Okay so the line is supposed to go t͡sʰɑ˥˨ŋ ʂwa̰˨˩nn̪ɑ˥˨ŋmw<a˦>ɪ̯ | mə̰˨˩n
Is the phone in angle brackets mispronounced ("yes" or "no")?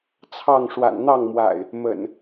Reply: yes